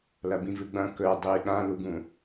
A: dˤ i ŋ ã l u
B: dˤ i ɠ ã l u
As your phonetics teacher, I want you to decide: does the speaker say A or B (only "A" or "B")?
B